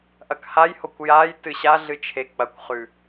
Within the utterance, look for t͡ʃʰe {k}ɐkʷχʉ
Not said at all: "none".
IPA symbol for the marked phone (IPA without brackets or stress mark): k͡p